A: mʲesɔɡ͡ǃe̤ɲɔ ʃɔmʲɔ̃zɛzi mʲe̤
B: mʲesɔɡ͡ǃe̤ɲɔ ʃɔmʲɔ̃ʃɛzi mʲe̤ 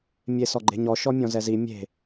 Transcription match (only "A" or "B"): A